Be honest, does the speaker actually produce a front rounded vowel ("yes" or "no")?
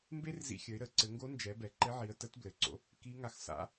no